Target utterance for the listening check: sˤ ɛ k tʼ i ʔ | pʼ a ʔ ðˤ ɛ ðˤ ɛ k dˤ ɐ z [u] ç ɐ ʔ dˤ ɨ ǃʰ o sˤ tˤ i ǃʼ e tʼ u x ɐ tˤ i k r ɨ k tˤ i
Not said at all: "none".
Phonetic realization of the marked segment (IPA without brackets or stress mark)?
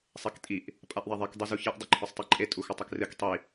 u